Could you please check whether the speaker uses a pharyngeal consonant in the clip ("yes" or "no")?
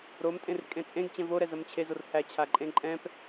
no